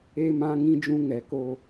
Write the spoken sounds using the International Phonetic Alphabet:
e˦ m ã˦ ŋ ĩ˦ d͡ʒ ũ˦ ŋ ɛ˨˦ k o˦

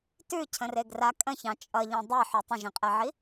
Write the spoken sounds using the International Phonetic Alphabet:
t ʉ cʰ ə̃ r e ɡ r a kʼ ə̃ ç ɑ̃ t͡ʃʼ ʌ ʎ ɑ̃ dˤ e ħ ʉ tˤ ə̃ ʒ ĩ qʼ ɛ ʕ i

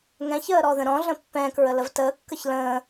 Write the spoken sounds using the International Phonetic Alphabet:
ŋ ɛ̃ ç əː ɾ ɔ ð ə̃ ɾ ɔ̃ ɮ ə̃ pː ɛ̃ k ɹ ə l ə v t əː kː ə ç l ə̃ː

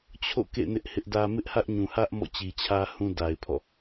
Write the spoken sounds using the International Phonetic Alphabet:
t͡ɕʰ o̰˦˨ k ḛ˦˨ n ɪ˦ ʔ h ɪ˦ ʔ d ä˦ m ɪ˦ ʔ h ä˦ ʔ ɲ ũ˨ h ä˦ ʔ m ɔ̰˦˨ t͡ɕ i˨ t͡ɕʰ ä˦ h ũ˦ d a˨ ɪ̯ pʰ ɔ̰˦˨

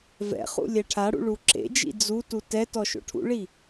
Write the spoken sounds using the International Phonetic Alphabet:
v ɛ̰ χ ṵ lʲ ɛ ʈʰ a ɽ ṵ ɭ u ǁ ḛ d͡ʒ ḭ d͡z u t u t ɛ t ɔ ʃ o̰ ʈʰ ṵ ɭ i

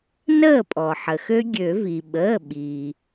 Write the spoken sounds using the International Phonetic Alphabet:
n əː˥˩ pʼ ɔ˩ ħ ə˩ x ø˦˥ ɡʲ ø˨˩˦ v i˩ ɓ əː˩˧˩ ɓ i˩

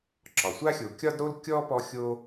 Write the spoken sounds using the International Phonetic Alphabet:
ǁ ɒ˩ sʷ a˥ xʲ o˨ kʲ ɒ˥ d ɾ o˥ l kʲ ɔ˥ p ɔ˦ xʲ o˥

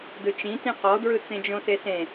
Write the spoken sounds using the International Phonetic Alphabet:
d ɯ t͡ʃ ĩ t ĩ q ɔ d ɹ ɯ t͡s ẽ d͡ʒ õ s e s ẽ

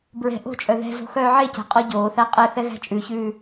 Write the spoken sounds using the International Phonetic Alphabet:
b ɹ ɛ̤ ʔ o̤ t͡ʃʼ œ ð ɛ̤ z o̤ x œː ʕ e c æ̤ qʼ ɔ ɟ oː θ æ qʼ ɛ θ ɛ ɣ æ̤ t͡ʃʼ ʉ ç ʉː

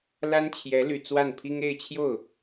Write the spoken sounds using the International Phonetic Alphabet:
l a˥ n t͡ɕʰ j ɛ˧˥ l y˨˩ t͡s w a˥˩ n pʰ i˥ ŋ e˥˧ ɪ̯ t͡ɕʰ j o˥˩ ʊ̯

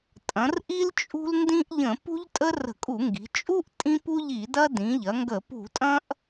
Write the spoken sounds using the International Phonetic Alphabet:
tʼ ɐ̃˩˧ r ʔ i˦ l t͡ʃʼ ṳ˦ l n d ĩ˦ ʔ ʎ ə̃˧˩˧ p ṳ˦ ʎ tʼ ə˦ r ə̤˧˩˧ kʼ u˧˩˧ ŋ ɡ i̤˩˧ t͡ʃʼ u˦ ʔ tʼ ĩ˦ p u˦ ʎ i˧˩˧ d ɐ˦ d ĩ˩˧ ʎ ɐ˩˧ ŋ ɡ ə˧˩˧ p ṳ˧˩˧ tʼ ɐ̃˦ ʔ

